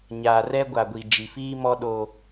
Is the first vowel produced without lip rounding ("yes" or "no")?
yes